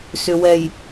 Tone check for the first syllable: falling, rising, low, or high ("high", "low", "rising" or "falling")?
low